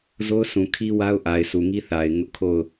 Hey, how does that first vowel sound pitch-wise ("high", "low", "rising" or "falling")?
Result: high